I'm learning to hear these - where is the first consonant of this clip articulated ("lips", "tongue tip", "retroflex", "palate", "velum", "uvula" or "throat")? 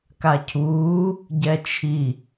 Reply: velum